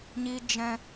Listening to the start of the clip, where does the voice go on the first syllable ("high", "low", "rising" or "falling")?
high